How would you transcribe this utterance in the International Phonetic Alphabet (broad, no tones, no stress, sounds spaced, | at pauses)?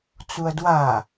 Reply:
t͡s u ɐ̯ d w a